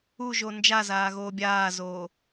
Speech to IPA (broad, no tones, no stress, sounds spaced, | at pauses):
u ʒ o n d͡ʒ a z aː ɣ oː bʲ aː z oː